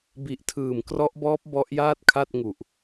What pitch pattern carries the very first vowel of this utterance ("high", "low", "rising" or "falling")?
low